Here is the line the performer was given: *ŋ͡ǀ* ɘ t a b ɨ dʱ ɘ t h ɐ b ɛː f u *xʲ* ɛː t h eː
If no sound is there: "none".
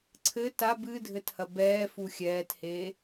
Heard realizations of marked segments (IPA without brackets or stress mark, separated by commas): ǀʰ, xʲ